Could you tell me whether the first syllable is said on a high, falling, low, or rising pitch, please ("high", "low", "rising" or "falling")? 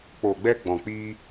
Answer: low